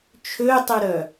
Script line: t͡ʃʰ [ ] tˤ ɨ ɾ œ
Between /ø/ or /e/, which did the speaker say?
ø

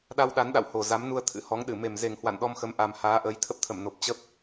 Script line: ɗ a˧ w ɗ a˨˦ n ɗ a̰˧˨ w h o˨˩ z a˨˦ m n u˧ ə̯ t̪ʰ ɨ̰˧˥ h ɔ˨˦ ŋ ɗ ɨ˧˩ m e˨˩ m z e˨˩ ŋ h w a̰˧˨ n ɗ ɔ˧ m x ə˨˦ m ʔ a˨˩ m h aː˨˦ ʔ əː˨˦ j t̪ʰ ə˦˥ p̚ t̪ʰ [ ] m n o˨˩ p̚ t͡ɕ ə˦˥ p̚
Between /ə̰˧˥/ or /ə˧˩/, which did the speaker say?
ə˧˩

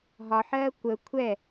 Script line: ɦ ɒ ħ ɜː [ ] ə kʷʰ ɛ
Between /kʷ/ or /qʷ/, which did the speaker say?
kʷ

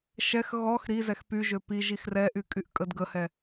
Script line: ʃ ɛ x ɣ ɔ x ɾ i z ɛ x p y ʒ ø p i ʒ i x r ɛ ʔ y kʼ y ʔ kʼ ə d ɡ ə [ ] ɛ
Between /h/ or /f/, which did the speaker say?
h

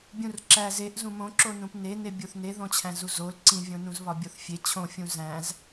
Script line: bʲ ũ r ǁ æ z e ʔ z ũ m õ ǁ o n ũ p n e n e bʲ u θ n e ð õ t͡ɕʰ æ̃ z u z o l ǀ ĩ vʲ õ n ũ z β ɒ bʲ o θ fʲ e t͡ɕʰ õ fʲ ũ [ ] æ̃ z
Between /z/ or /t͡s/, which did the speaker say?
z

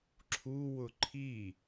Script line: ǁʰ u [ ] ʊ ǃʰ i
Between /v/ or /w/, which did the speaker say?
w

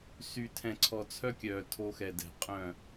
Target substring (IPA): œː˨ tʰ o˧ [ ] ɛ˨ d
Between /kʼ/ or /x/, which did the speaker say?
x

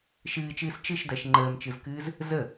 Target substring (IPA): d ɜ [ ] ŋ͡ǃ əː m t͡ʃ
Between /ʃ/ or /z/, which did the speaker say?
ʃ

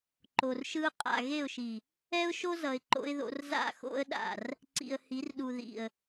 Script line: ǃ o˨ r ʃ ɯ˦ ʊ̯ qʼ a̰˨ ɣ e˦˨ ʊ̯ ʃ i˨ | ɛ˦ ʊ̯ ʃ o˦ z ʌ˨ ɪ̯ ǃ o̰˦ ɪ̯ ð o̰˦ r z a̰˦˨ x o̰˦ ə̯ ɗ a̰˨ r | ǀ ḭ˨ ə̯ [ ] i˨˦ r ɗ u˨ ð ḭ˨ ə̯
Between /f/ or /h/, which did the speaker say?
h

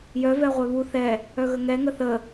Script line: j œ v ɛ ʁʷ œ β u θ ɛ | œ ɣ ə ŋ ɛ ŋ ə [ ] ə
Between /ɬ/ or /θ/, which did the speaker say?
θ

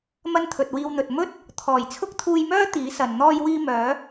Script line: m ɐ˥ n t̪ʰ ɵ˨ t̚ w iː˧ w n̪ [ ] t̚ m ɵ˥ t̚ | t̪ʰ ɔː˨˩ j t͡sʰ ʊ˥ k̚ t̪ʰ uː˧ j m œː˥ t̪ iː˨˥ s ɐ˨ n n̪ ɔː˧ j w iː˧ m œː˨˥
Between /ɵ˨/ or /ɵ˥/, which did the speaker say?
ɵ˨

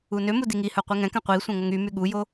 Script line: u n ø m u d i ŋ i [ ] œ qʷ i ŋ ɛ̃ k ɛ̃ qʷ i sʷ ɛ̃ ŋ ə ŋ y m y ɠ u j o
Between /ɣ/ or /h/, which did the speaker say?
h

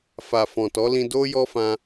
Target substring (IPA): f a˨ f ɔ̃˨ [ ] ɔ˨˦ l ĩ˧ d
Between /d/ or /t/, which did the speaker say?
t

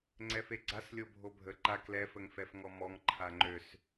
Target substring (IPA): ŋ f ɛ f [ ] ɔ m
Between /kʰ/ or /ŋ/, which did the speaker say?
ŋ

